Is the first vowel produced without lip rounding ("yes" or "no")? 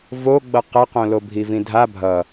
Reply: no